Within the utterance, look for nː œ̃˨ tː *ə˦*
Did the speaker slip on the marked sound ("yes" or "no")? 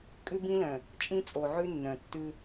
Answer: yes